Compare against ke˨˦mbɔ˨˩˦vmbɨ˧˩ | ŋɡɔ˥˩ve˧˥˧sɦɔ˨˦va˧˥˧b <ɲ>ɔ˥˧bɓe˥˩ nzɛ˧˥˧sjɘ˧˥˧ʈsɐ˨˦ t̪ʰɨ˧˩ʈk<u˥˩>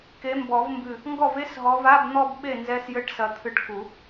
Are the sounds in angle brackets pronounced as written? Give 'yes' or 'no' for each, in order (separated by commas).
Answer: no, no